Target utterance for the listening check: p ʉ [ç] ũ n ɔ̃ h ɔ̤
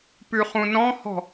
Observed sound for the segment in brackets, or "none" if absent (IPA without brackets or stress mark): χ